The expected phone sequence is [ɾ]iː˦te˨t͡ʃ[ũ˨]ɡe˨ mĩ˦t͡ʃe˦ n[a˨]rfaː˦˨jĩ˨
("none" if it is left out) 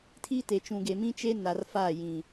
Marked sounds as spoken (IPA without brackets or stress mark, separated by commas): tʰ, ũ˨, a˨